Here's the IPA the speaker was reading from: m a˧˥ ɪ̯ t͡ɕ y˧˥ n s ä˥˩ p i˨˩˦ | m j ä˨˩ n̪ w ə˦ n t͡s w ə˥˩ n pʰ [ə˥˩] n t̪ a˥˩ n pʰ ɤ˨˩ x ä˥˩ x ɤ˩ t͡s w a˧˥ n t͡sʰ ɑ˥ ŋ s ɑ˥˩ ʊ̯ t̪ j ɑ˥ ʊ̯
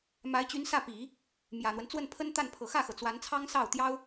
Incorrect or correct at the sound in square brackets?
incorrect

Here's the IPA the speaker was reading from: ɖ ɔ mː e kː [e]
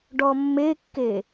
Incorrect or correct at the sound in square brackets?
correct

